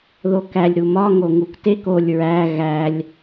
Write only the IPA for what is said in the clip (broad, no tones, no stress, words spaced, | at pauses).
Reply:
ðokælʲ ɾumɒ ŋoŋuktek olʲ ɹæ ɣælʲ